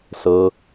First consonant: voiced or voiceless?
voiceless